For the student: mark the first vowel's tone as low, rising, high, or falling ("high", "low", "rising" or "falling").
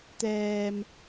high